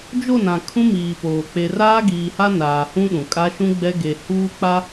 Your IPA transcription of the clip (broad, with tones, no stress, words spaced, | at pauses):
d͡ʒo˦˨nã˨ kʰũ˦miː˨poː˨ k͡pe˨raː˦ ɡiː˨ha˦ naː˨hũ˦ɗũ˨kʼa˦ ʃũ˦ɡ͡bɛ˦ɡe˨huː˦ k͡pa˦